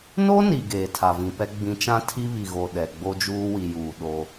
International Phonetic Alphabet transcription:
n o˦ n i˨ ɡ eː˨ tʰ a˨ v ĩ˨ p ɛ˦ ɡ͡b ĩ˨˦ t͡ʃ ã˦ tʰ i˦ β i˨ ɣ o˨ ɗ ɛ˨ ɡ͡b o˦ d͡ʒ uː˦ w i˨ j uː˨ ɗ o˦

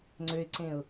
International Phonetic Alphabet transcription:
ŋ͡ǀ ø ɪ̯ ǀ ẽ ʊ̯

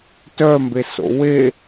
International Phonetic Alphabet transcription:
t œ m b e s o̰ w e

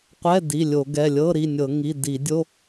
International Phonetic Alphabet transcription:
qʷ ɛ˧˥˧ d i˩˧˩ lʲ o˧˩˧ ɡ ɛ˩˧˩ lʲ ɤ˧˥˧ ɾ i˩˧˩ nʲ ɤ˧˩˧ ŋ i˩˧˩ d i˧˩˧ dʲ o˧˥˧

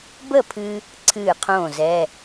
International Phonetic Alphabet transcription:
b ə˥˩ pʰ ɨ˧ | ǀʰ ɨː˥˩ qʰ õː˥˩ z ɛ˧˥˧

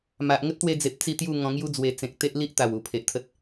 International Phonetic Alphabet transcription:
m a˨ ʔ ŋ ə˦ t̚ t̪ w e˧ d͡z e˨ p̚ t͡s i˥˧ t̪ j u˥˧ ŋ ɔ̃˧ ŋ j u˦ d͡z w e˧ t͡s ẽ˨ k̚ t̪ e˦ ʔ l i˦ ʔ t̪ a˨˩ w u˨˩ pʰ e˨ ʔ t̪ʰ ə˦ t̚

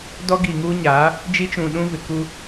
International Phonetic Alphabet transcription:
d ɔ˦ ɡ i˨ ŋ uː˦ ɲ aː˨˦ | d͡ʒ i˦ t͡ʃ ũ˨ ɗ ũ˦ v ɪ˨ k u˦

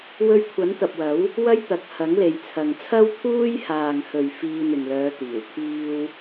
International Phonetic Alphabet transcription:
w ɵ˧ ɥ kʷʰ ɐ˨˥ n t̪ ɐ˨ p̚ w ɐ˨˥ w | w ɐ˥ j t̪ ɐ˨˥ k̚ h ɐ˨˥ ŋ l e˨ j t͡sʰ ɐ˨ ŋ t͡sʰ ɐ˥ w t̪ʰ uː˥ j h aː˨ ŋ h ɵ˨ ɥ f iː˧ n̪ ɪ˨ ŋ l œː˨˧ t̪ iː˨˩ w t̪ʰ iː˥ w

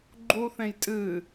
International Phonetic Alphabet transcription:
ɡ͡ǃ u θ ẽ j tʼ ɨ

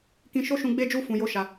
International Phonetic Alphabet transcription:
k ĩ˧ ʃ o˦ ʃ ũ˧ ɡ͡b e˦ d͡ʒ u˦ f ũ˧ j o˦ ʃ a˧

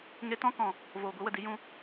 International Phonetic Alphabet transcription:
ŋ e˧ t ɔ̃˦ k ɔ̃˨ | v oː˨ ɡʷ i˨˦ w ə˨ d i˨˦ j ũ˧

